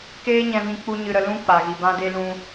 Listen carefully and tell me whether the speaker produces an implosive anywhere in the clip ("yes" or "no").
no